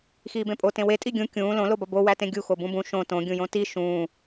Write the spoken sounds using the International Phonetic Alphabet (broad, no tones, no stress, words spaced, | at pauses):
xiːbẽpʼo tẽwe tʼiɡʲũ kʲũː lõlobɒ bowætẽ ɡʲuxo bũbũ ʃõ tõɡʲũjõ ti ʃũː